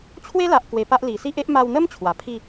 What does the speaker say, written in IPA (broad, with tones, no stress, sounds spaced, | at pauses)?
t͡ɕʰ w e˦ l a˨ ʔ k w e˧ p a˦ ʔ l i˨˩ s i˦ ʔ e˦ ʔ m a˧ w n̪ ə˦ m t͡ɕʰ w a˨˩ pʰ i˥˧